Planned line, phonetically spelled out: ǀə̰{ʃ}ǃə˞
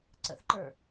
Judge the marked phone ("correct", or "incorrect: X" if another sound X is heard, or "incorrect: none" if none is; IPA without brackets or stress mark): incorrect: θ